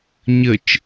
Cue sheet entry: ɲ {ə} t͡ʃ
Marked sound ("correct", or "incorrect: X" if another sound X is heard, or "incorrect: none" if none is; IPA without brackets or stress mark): correct